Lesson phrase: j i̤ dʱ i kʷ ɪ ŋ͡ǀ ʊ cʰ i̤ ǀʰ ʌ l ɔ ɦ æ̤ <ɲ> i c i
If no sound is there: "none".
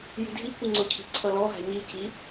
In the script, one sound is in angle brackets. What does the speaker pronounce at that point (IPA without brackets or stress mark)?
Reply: ɲ